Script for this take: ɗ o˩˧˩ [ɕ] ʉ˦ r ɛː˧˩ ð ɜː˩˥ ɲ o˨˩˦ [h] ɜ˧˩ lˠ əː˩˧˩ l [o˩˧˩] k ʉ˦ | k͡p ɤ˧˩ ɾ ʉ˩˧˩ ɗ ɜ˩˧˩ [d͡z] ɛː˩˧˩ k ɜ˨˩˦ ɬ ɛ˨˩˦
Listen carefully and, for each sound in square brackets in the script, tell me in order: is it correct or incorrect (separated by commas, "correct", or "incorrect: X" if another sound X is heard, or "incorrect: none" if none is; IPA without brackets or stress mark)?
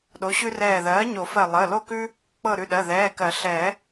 correct, incorrect: f, incorrect: o˥˨, incorrect: ð